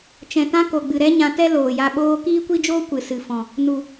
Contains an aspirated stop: no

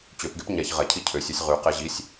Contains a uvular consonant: yes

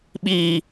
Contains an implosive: yes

